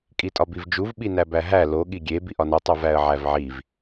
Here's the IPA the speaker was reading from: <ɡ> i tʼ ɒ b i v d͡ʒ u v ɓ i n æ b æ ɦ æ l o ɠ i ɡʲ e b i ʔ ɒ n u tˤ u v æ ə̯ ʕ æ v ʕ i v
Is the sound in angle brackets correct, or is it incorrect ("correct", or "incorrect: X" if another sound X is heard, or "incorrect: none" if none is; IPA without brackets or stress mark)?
incorrect: kʼ